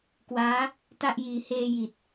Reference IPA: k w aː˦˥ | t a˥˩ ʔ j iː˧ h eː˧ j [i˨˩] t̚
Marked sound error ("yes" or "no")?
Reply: no